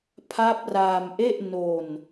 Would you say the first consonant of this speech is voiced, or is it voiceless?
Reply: voiceless